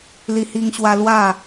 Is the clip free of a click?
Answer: yes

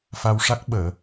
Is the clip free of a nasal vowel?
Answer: yes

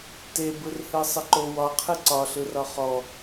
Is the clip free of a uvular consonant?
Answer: no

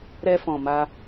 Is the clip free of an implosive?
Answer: yes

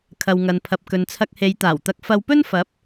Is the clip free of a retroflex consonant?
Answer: yes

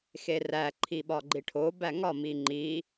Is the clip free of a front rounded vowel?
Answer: yes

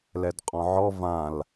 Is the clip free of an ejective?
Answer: no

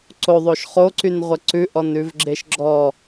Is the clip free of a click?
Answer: no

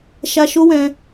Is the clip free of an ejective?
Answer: yes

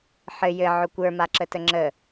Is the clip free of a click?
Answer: no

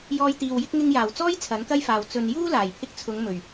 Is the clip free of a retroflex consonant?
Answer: yes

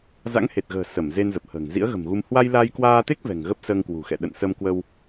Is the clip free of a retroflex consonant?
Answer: yes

